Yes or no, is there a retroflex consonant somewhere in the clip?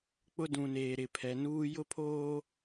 no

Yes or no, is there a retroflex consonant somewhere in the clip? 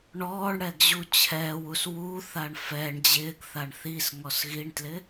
yes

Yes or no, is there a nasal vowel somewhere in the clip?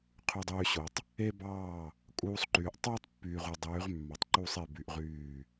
no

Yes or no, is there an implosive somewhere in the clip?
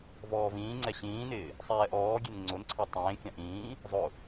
no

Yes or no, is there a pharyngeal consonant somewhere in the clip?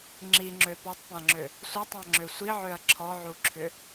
yes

